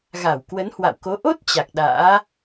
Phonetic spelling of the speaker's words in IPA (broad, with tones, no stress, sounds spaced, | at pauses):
ɣ a˧˩ w k w ə˨˦ n h w a̰˧˨ w k o˨˦ ʔ o˦˥ t̚ t͡ɕ a˨˩ k̚ ɗ a̰ː˧˥